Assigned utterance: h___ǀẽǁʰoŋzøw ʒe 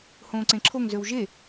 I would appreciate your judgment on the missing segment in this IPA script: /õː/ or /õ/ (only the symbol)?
õː